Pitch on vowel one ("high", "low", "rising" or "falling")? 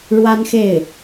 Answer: high